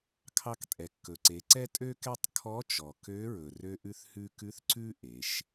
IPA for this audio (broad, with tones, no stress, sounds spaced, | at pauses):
kʰ ɑ˧ k tʼ ɛ˩ kː ɵ˩ ǀ e˩˧ ǀ ɛ˥ tʼ ø˥ k ɛ˥ tˤ kʰ ɔ˧˥ t͡ʃ ɔ˩ k ø˧˥ ɹ ɵ˩ r ø˧ ʔ ʉ˧ θ h ʉ˧ k ʉ˧˥ θ ǀ ʉ˥ ʔ e˩˧ ʃ